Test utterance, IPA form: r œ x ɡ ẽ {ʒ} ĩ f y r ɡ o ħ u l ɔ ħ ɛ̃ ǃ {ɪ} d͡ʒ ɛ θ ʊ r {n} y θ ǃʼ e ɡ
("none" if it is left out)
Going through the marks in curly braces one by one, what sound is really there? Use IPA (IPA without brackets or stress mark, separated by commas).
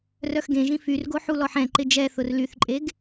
ʒ, ɪ, l